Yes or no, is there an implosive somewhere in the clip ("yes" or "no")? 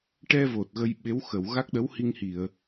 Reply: yes